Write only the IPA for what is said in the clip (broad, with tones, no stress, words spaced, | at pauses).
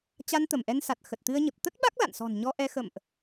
t͡ɕa˧n t̪ə˧˩mʔɛ˧nsa˨˩t̚ xə˨˩t̚t̪ɨ˧ə̯ɲə˨˩p̚ t̪ə˦˥t̚ɓa˦˥k̚ la̰˧˨nsɔ̤˨˩nɲɔ˧ʔɛ˧ xə̰˧˨mʔ